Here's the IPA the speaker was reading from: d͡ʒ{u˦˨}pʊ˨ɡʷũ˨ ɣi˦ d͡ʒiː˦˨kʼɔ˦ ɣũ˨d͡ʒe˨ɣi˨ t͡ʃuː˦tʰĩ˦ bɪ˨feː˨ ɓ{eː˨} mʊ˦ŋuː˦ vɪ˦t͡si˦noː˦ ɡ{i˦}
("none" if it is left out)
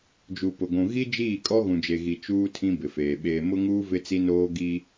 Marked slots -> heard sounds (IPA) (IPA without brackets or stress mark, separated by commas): u˨, eː˨, i˦